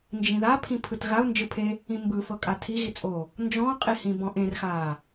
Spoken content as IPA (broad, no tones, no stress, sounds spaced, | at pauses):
n d͡ʒ ĩ ð a pʰ ĩ pʰ ɯ t ɣ a ʊ̯ n d͡ʒ ɯ pʰ e | ĩ m b ɯ f ɤ kʼ a tʰ i ɣ i t͡sʼ oː | n d͡ʒ ɔ̃ qʼ i h ĩ b ɔ̃ ʔ ẽ r x aː